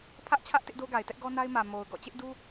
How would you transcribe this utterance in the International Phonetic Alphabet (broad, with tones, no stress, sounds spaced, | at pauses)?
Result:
pʰ ä˦ ʔ t͡ɕʰ ä˦ ʔ t ɪ˦ ʔ d o˦ ɡ a˨ ɪ̯ t ɛ˦ ʔ ɡ ɔ˦ n a˦ ɪ̯ m ä˨ m o˨ ʊ̯ ɡ ɔ̰˦˨ t͡ɕ ɪ˦ ʔ d u˦